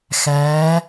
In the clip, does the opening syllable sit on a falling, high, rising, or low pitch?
rising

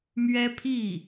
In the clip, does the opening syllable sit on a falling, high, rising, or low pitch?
high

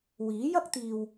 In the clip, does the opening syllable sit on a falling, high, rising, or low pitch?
rising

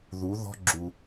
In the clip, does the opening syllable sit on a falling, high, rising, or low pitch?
rising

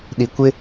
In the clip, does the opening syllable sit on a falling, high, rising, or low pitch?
low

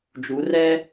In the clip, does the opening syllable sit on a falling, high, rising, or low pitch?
rising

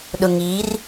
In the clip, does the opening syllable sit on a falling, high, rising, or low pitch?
low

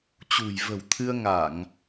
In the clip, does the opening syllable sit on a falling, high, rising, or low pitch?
low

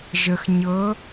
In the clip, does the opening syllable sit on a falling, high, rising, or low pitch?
low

